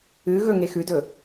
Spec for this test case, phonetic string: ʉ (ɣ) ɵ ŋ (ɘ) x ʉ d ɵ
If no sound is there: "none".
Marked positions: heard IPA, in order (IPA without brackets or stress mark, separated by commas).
ɣ, e